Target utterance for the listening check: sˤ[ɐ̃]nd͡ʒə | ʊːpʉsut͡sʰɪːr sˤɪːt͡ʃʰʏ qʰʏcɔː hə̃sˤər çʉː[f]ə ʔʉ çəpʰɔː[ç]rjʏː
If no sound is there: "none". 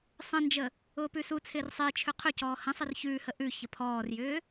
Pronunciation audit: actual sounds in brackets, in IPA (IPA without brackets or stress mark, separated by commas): ə̃, h, none